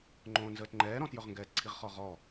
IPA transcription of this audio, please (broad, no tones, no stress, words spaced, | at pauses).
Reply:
ŋ͡ǃõːnzəːtŋ͡ǃɛː ɾɔ̃tjɵʁŋɡɛːtǀʰiʁ χɔʁɔ